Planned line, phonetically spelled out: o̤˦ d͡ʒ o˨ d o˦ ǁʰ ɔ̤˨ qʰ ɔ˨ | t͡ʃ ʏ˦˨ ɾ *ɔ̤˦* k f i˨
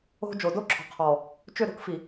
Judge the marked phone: incorrect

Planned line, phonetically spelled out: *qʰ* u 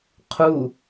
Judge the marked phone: correct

